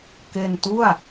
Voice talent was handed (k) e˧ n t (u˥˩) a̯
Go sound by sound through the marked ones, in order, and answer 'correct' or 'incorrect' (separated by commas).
correct, correct